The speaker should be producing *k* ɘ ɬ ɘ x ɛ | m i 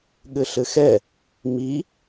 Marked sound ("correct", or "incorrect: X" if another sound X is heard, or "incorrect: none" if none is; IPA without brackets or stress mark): incorrect: ɠ